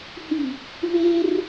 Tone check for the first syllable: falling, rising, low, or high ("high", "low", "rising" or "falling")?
low